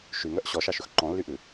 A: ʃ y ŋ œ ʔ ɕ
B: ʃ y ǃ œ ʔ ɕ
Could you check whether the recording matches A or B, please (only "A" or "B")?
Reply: A